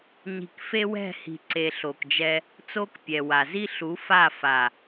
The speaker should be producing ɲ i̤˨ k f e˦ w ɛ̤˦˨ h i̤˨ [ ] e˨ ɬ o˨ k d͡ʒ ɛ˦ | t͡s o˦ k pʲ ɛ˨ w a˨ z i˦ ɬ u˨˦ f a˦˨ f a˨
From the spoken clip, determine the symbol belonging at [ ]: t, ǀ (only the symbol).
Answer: ǀ